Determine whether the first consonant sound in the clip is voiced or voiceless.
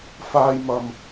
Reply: voiceless